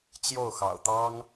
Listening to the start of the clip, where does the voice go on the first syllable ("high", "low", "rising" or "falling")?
falling